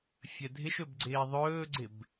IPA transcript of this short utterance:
fʲ ə dʱ ɪ ʃ ɵ b ɡ͡ǀ ɪː ðˤ ɵː ɡ͡ǀ ɪ b

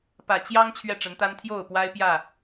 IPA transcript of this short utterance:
p ä˨˩ t͡ɕ j ɑ˦ ŋ t͡ɕʰ ɥ ɛ˥˨ ʈ͡ʂ ə˨˦ n t̪ a˦ n t̪ʰ j o˥˨ ʊ̯ p w a˦ ɪ̯ p j ä˥˨

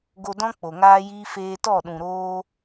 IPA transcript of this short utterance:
ɡ o˧ d ɔ̃˦ k͡p o˨ ŋ aː˦ j iː˦ f eː˧ t ɔ˦˨ ɗ ũ˨ ɾ oː˧

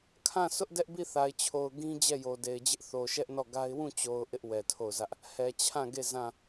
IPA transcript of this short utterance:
kʰ ã˦˨ s ʊ˦ ʔ d ɛ˦ ʔ b i˦˨ θ a˨ ɪ̯ t͡ɕʰ o˨ ʊ̯ ɡ ĩ˦ d͡ʑ ɛ˦˨ j o˨ d e˨ ɪ̯ d͡ʑ ɪ˦ ʔ θ o˨ ʃ ɛ˦ ʔ n ɔ˦˨ ɡ a˦ ɪ̯ w ũ˦˨ t͡ɕ o˨ ʊ̯ ʔ ɪ˦ ʔ w ɛ˨ tʰ o˦˨ ʊ̯ z ä˦ ʔ | h ɛ˨ t͡ɕʰ ã˦˨ ɡ e˦˨ z ã˦˨

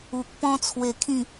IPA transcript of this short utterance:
u˨ k̚ p ɔ̃˦ t͡sʰ w e˧ kʰ ĩ˥˧

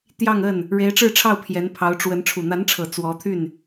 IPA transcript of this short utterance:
t̪ j ɑ˥˧ ŋ ə˥˩ n | ɻ e˧˥ ɪ̯ ʈ͡ʂ ɻ̩˥˧ ʈ͡ʂʰ ɑ˥˩ ʊ̯ pʰ j ɛ˧˥ n pʰ ɑ˧˥ ʊ̯ ʈ͡ʂ w ə˧˥ n ʈ͡ʂʰ u˨˩ n̪ a˧˥ n ʈ͡ʂʰ ɤ˨˩ t͡s w ɔ˧˥ t̪ʰ y˥˩ n

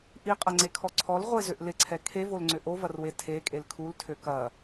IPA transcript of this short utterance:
ʔ i qʼ ɐ ŋ͡ǀ e kʰ ɔ ǀʰ ɔ l ʁʷ e z ø ʔ l ɪ ǀʰ ɛ kʰ e v o l ŋ͡ǀ ʏ ʔ o v ɐ r w e tʰ e kʼ e l kʰ u l tʰ ø k ɐ

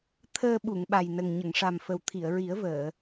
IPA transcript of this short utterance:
t̪ʰ əː˧ ɓ u˨˩˨ ŋ ɓ a˨˩ j n ə˨˩ ŋ ɲ ə˨˩˨ ŋ ʂ a˨˩ m f ə˨˩ w t̪ʰ i˨˩˨ ə̯ ɹ i˨˩˦ ə̯ v əː˨˩˨

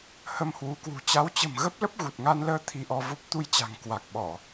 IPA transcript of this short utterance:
h ə˧ m h w u˨˦ k w ṳ˨˩ t͡ɕ a˨˦ w t͡ɕ ə̤˨˩ m ɣ ə˦˥ p̚ l ə˦˥ p̚ ɣ u˨˩ t̚ ŋ a˧ n l əː˧ t̪ʰ i˧ ʔ ɔ˧ v o˦˥ p̚ t̪ u˧ j t͡ɕ a̤˨˩ ŋ k w a˨˩ k̚ ɓ ɔ˧˩˨

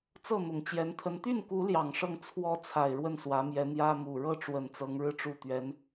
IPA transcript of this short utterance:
t͡s ɤ˥˩ n̪ ʊ˨˩ ŋ t͡ɕ j ɛ˧˥ n t̪ʰ ə˧˥ n t̪ y˥˩ n k u˧˥ l j ɑ˨˩ ŋ ʂ ɤ˥˩ ŋ t͡sʰ w ɔ˥ t͡sʰ a˨˩ ɪ̯ ɻ w ə˥˩ n s w ä˧˥ m j ɛ˧˥ n̪ j ä˥ m u˨˩ ɻ ɤ˥˩ ʈ͡ʂ w ə˨˩ n t͡s ɤ˧˥ ŋ ɻ ɻ̩˥˧ ʈ͡ʂ u˥˩ t̪ ɥ ɛ˧˥ n

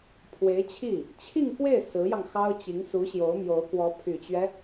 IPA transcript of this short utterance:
pʰ w e˧˥ ɪ̯ t͡ɕʰ i˥˩ | t͡ɕʰ i˥˧ ŋ k w e˥˩ ɪ̯ s ɹ̩˧˥ j ɑ˧ ŋ x ɑ˥ ʊ̯ t͡ɕ i˧˥ ŋ s u˧˥ ɕ j o˧˥ ʊ̯ m j o˧˥ ʊ̯ k w ɔ˧˥ pʰ y˨˩ t͡ɕ ɥ ɛ˦

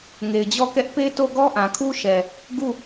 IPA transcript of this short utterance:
ŋ e˨ ɪ̯ d͡ʑ ɔ˦˨ k ɛ˦ ʔ p e˦ t o˦˨ ɡ ɔ˦ ʔ ã˨ kʰ u˦ ʃ ɛ˨ | ɡ u˦˨

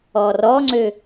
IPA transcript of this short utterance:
ɔ r ɔ ŋ͡ǀ ø

